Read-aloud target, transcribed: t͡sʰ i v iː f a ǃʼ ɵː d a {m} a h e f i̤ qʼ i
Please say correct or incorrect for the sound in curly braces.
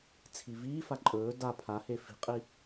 incorrect